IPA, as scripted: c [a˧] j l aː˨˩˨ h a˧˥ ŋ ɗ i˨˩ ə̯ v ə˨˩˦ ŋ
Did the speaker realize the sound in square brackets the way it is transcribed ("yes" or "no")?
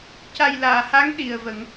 no